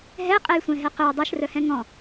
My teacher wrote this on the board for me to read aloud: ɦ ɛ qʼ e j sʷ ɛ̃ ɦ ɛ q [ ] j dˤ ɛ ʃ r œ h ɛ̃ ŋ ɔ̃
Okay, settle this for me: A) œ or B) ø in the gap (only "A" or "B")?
B